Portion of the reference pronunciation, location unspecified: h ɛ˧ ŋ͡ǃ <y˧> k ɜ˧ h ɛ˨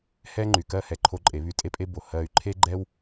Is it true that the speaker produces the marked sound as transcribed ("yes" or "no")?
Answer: no